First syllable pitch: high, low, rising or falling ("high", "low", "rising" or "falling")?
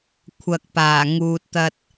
low